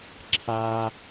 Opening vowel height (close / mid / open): open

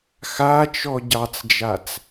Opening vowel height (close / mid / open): open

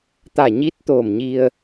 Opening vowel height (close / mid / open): open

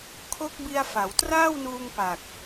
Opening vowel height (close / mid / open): mid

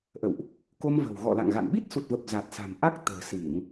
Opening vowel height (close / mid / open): mid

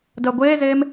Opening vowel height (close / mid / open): mid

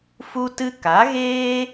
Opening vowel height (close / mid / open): close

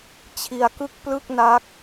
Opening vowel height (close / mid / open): close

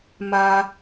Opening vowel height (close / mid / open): open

